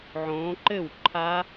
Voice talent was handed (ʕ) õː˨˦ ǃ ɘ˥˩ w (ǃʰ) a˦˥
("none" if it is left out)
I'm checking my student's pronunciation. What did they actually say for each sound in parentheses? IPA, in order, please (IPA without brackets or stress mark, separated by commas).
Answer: ʕ, ǃʰ